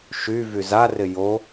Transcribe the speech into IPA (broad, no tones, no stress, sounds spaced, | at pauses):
ʃ y v y z a r ɪ j o